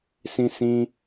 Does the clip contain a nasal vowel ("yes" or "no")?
yes